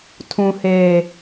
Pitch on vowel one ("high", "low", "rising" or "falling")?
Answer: low